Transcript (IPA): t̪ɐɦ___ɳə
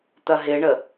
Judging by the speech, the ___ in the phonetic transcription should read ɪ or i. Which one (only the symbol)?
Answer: ɪ